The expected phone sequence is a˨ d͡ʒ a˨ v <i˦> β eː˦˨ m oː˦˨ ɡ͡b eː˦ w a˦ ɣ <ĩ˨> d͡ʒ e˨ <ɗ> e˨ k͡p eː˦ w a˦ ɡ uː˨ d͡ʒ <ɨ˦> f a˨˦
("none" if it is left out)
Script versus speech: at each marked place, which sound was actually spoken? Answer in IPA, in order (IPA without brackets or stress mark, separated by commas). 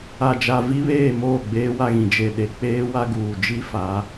i˦, ĩ˨, ɗ, i˦